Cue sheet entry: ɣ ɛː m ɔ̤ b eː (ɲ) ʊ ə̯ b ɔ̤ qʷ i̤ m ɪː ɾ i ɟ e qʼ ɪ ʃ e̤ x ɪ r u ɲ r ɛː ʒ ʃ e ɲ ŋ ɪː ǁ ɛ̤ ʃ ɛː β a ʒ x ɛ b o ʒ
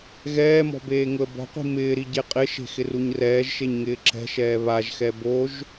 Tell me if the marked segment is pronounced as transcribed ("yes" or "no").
no